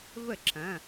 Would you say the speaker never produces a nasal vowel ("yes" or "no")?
no